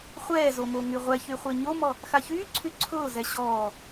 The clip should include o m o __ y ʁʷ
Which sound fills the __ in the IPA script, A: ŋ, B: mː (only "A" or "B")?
A